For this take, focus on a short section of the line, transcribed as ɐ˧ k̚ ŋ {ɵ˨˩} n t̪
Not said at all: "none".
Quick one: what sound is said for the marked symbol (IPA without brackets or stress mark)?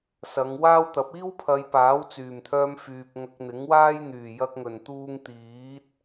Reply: ɵ˨˩